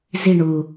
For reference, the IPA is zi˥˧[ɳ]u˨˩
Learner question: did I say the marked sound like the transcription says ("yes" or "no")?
yes